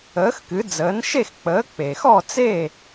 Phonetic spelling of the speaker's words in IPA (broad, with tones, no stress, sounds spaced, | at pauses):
əː˩˥ x k ɨ˩˥ d͡z əː˩˥ n ʃ e˥˩ x k͡p əː˩˥ k͡p e˩ x ɔ˥˩ t͡s eː˥˩